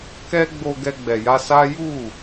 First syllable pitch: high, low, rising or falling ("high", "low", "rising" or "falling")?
high